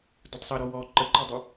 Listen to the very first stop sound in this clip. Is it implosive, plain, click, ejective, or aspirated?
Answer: plain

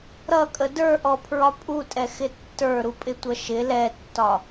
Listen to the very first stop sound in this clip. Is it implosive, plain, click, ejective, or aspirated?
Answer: ejective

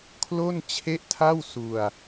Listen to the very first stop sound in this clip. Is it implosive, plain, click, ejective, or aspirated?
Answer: aspirated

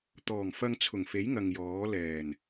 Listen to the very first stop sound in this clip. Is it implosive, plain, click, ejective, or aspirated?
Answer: plain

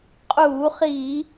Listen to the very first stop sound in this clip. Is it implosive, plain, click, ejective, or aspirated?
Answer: ejective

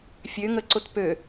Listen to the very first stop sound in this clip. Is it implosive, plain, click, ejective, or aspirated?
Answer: click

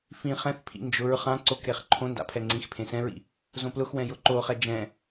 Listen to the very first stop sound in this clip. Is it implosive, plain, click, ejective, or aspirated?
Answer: aspirated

